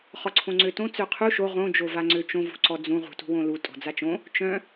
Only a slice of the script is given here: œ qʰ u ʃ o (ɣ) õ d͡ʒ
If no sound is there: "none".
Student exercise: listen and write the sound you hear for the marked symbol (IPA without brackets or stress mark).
ʁ